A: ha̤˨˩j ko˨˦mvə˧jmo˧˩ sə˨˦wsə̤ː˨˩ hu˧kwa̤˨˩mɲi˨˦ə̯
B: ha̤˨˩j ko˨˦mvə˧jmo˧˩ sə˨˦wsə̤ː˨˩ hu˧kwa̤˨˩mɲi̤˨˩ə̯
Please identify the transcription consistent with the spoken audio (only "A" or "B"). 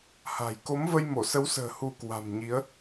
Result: A